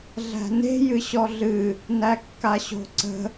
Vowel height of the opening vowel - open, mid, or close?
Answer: open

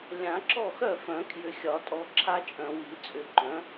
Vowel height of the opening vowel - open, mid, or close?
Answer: open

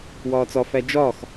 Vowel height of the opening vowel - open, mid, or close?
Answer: open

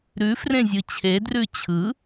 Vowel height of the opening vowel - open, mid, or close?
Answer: close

